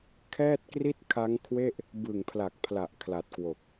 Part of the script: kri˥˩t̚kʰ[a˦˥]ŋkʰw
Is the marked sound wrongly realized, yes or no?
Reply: no